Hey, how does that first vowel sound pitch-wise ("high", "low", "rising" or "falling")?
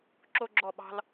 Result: high